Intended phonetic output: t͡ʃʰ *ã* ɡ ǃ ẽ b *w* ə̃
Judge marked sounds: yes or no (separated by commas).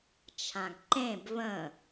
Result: yes, no